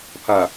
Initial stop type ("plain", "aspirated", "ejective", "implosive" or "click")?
aspirated